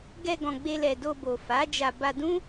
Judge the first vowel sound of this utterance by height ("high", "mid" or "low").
mid